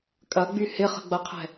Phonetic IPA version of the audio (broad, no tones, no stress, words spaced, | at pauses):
kʼɐɡ͡by hɪχə̤ɡ͡bɐqʰɛ̤